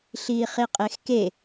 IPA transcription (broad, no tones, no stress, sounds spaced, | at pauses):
ɬ iː χ i qʼ e x k e